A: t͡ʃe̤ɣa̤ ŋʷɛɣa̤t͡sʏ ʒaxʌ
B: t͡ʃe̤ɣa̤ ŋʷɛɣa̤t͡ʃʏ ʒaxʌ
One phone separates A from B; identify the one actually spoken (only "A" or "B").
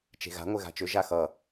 B